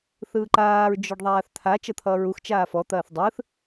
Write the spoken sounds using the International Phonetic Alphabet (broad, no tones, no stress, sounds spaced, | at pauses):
θ ɯː ǃ aː ɹ d͡ʒ ɔ ɖ ðˤ aː θ t̪ʰ a t͡ʃ ʌ t̪ʰ ʌː ɹ u x t͡ʃ aː f ɔ t̪ ɐː θ dˤ ɯː θ